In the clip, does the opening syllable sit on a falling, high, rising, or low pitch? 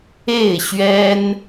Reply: falling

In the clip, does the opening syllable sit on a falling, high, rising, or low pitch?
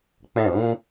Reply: falling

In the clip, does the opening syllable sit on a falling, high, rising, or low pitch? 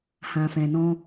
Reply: low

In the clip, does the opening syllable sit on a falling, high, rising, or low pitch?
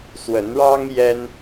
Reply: rising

